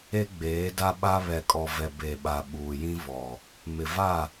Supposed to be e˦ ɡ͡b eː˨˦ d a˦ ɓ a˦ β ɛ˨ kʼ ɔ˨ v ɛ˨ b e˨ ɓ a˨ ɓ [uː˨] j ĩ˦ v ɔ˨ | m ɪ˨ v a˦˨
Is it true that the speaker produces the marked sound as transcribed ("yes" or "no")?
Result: yes